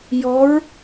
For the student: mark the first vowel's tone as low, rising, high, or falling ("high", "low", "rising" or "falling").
rising